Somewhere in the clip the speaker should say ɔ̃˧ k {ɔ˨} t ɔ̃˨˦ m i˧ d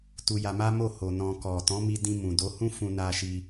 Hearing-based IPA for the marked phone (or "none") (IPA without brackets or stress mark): ɔ˨